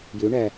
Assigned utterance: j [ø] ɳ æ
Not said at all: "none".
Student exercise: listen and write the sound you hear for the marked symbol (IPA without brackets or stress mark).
ø